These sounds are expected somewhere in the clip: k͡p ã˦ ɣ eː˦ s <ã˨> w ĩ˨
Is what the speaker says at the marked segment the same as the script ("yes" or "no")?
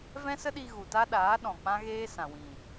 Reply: yes